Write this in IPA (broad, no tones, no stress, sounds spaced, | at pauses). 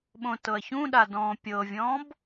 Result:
ɓ õ t ɤ ɐ̯ ç ũ ɗ a d ɔ̃ː pʲ ɤ vʲ ɔ̃ː b